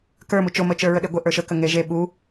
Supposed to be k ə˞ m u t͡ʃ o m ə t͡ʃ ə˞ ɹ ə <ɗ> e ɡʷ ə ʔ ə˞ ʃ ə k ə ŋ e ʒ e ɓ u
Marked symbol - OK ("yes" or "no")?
yes